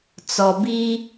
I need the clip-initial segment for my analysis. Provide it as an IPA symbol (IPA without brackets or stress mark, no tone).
t͡s